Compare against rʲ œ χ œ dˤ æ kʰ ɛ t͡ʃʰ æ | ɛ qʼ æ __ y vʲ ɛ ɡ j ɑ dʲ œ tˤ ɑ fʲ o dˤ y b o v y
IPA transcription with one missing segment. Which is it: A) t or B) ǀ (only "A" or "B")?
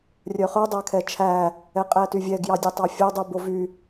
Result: A